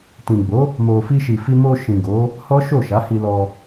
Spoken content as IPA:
t ĩ˨ ɡ͡b o˨˦ | m o˨ f i˧ ʃ i˨ f i˧ m o˧ ʃ ĩ˨ ɡ o˨˦ | h ɔ˦ ʃ o˦˨ ʃ a˨˦ h i˧ l ɔ˧

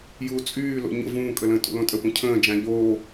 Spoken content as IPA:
j uː t͡sʼ yː l o̰ ɲ ə̰ v ũː kʼ ə l ə̃ː tʼ ṵ l õ tʼ ə p ũ cʰ ə̃ː d͡ʒ ã ʎ oː

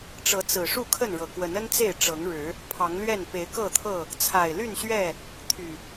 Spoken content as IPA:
ʈ͡ʂ ɤ˨˦ t͡s ɹ̩˨˩ ʂ u˥˨ kʰ ə˥˨ n ɻ ɤ˨˩ k w ə˨˦ n ə˦ n t͡s e˥˨ ɪ̯ ʈ͡ʂ ɤ˨˦ ŋ ɻ ɻ̩˨˦ | pʰ ɑ˨˦ ŋ l ɥ ɛ˥˨ n p e˨˦ ɪ̯ k ɤ˥˨ t̪ʰ ɤ˥˨ | t͡sʰ a˨˩ ɪ̯ l y˥˨ n ɕ ɥ ɛ˥˨ | t̪ʰ y˨˩

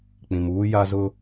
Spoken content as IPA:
k͡p ĩ˨ m uː˦ j a˦ z ʊ˦

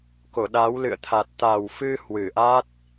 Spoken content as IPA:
k o˧˩ ɗ a˨˦ w l ɨ̰˧˨ ə̯ t̪ʰ a˨˩ t̚ t̪ a˨˩ w f ɨ˧ h w ɨ˧˩ ʔ a˦˥ t̚

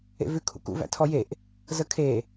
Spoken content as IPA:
ḛ v ʉ kʰ ṵ k ṵ v æ̰ tʰ ɔ j e ʔ | z ə kʰ e

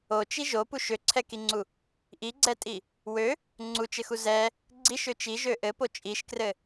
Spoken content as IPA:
o t͡ʃ i ʒ o p u ʃ ø ǀʰ ɛ k i ŋ͡ǀ u | ʔ i ɡ͡ǀ ɛ tʼ i | w ø | ŋ͡ǀ u t͡ʃ ɘ x u z ɛ | ɡ͡ǀ i ʃ ø t͡ʃ i ʒ ø ʔ ɘ p o t͡ʃʼ i ʃ k r ɘ

